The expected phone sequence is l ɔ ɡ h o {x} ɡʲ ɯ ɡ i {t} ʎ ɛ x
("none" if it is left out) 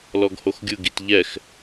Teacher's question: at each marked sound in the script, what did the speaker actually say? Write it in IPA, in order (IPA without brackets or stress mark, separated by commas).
x, t